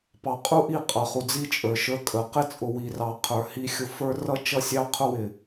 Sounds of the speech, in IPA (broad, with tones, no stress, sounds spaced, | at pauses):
p ɑ˨ qʼ u˦ ʔ i˦˨ qʼ ʌ˨ χ u˨ d͡z i˦ t͡ʃʼ ə˞˨ ʃ ə˞˦ kʼ ə˨ q ɪ˦ t͡sʼ ʊ˨ w i˨ r ɑ˨ qʰ ə˞˨ h i˦ xʲ ʊ˦ f ə˞˦ r ʌ˦ t͡ʃ ʌ˦ sʲ ɑ˦ qʰ ʊ˦ w ɪ˨